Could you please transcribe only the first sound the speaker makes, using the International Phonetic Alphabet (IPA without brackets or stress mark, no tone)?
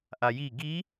ʔ